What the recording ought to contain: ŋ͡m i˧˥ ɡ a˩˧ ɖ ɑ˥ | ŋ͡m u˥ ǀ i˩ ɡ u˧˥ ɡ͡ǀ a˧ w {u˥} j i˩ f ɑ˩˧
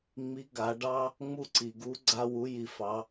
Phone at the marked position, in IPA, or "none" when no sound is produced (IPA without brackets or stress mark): u˩˧